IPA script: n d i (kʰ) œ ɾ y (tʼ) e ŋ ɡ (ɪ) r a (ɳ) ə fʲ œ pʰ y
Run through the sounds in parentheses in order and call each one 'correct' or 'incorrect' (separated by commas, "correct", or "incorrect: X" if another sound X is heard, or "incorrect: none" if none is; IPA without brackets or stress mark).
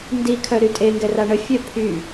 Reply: correct, correct, incorrect: ɛ, correct